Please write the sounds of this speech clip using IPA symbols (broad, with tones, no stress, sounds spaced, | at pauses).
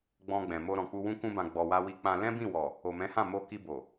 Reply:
ɡ͡b ɔ̃˧ ɡ͡b ɛ̃˨ m o˧ ɾ ɔ̃˨ k͡p u˧ w ũ˦ k ũ˧ b ã˨ ɡ͡b ɔ˨ w a˧ w i˧ k͡p ã˧ l ɛ̃˦ b ĩ˦˨ w ɔ˨ | o˨ m ɛ̃˨˦ h ã˦˨ m o˧ k i˧ b o˨